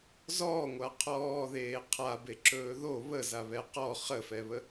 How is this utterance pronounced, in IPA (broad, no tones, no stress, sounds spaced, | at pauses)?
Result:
z ɔː ŋʷ a qʰ ɔː ð eː qʰ a b e ǁ ɵː ð o β ə z a β ɛ q ɔ χ ə f ɛ β ə